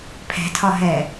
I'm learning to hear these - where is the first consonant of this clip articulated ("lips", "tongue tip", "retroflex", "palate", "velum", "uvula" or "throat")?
lips